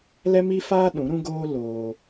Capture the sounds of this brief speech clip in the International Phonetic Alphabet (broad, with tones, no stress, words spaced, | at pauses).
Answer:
lɛ˦mi˦faː˦ ɗũ˨˦ɾũ˦ɡoː˦ loː˧